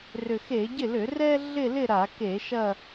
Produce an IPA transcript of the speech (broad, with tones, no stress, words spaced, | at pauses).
rʏ˨˩xe˧˩˧ɟɪ˥˩lʏ˧˩˧ rɛ˥ ɮɪ˥˧lɪ˥˧ ɾa˧˩˧ke˧˩˧ʃɐ˥˧